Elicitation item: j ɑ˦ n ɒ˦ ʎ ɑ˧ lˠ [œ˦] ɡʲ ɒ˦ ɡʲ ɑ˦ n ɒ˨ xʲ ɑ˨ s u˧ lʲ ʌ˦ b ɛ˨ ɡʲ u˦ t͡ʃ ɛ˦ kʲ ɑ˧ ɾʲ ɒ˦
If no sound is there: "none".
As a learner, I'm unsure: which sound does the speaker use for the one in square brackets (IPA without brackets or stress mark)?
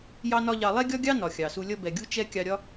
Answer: ɛ˦